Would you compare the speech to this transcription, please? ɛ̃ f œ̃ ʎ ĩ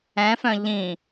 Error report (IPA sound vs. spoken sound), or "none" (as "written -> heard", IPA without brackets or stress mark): none